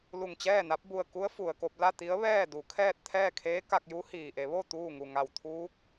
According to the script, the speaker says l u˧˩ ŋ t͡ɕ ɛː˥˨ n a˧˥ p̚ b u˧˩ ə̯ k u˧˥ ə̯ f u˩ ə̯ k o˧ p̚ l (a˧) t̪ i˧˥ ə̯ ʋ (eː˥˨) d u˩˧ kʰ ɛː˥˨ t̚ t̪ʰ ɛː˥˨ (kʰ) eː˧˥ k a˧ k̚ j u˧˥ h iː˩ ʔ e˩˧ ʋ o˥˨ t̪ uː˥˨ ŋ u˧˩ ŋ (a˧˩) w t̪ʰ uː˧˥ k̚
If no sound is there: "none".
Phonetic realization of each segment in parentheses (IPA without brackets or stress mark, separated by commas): a˥˨, ɛː˥˨, kʰ, a˧˩